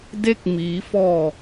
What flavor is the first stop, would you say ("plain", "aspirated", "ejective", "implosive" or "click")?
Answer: plain